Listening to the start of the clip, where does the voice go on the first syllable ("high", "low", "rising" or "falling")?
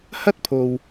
high